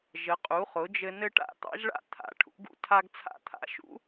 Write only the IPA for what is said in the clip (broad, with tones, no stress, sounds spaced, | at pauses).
ʒ ə˩˥ qʼ u˩˥ χ ʊ˩˥ d͡ʒ ɘ˦ n ɘ˦ ʈ a̰˦ t̪ ɑ̰˦ ʒ ɭ a̰˦ t̪ʰ a̰˩˥ ʈʰ ṵ˩˥ ɡ ṵ˦ tʰ a˦ ɡ t͡sʰ a̰˦ t̪ʰ a̰˩˥ ʃ ṵ˩˥